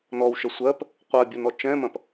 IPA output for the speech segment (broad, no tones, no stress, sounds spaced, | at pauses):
n ɔ w ʃ ə sʷ ɜ p | qʷ ɜ bʲ o n ɔ t͡ʃ ɛ̃ m ɐ̃ p